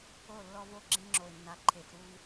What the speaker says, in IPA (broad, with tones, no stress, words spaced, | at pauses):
o˦˨lːɔ˦vo˦˨ ɡ͡ǁẽ˦ŋ͡ǁo˨ɪ̯nːa˨ ǃʰe˨fɾu˦v